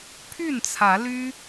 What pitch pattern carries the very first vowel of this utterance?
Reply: falling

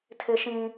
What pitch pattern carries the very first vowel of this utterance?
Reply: high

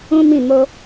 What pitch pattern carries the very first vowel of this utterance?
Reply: high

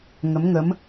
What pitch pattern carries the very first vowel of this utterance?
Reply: rising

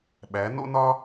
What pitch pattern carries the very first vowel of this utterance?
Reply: rising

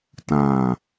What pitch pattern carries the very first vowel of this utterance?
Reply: low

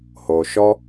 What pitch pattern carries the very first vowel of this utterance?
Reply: low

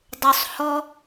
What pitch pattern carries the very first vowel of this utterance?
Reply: low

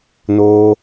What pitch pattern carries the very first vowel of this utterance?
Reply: high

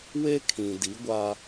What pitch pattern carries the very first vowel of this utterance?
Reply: high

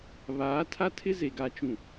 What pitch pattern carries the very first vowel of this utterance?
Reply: rising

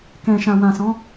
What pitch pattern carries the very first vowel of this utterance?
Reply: low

